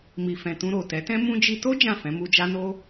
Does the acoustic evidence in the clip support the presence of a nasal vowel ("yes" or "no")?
yes